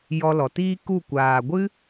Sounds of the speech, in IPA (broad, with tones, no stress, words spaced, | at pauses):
jɔ˧lɔ˨tiː˦ku˦˨ kʷaː˨ɡʷɨ˦